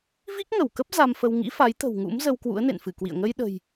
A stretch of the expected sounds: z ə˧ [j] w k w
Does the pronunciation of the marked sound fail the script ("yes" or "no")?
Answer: yes